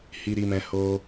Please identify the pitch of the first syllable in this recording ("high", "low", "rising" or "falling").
high